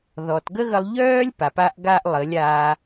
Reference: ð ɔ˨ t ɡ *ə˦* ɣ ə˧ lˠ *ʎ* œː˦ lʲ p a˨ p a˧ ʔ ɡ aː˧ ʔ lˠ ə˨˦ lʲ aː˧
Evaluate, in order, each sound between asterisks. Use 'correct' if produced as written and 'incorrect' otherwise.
correct, correct

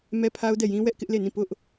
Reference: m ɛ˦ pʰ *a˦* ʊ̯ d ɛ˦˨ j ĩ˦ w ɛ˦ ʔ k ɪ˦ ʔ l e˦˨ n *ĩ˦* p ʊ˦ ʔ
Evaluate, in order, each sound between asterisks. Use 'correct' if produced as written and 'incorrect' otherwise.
correct, incorrect: ĩ˦˨

